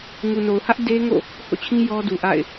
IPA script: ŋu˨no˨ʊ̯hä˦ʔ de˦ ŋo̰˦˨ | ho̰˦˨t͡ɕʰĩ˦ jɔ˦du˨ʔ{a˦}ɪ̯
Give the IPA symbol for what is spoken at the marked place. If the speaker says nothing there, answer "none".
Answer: a̰˦˨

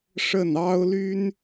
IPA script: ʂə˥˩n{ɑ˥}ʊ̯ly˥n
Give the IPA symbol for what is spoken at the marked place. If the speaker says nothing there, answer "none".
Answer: ɑ˥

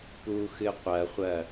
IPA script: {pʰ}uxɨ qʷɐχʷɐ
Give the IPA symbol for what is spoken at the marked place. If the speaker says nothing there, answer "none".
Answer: p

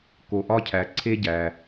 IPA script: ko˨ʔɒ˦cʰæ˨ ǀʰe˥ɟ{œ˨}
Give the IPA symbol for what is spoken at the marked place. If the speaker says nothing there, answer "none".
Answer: æ˨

